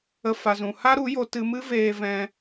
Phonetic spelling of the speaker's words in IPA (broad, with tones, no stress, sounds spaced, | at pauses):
ə˧ f a˨ z ũ˨ h a˦ ɾ u˨˦ j o˧ t ɨ˧ m ɨ˦ v eː˧ v ɛ̃˧